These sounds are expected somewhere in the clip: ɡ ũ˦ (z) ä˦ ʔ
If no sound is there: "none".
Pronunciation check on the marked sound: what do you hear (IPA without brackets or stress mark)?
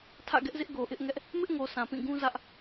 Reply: z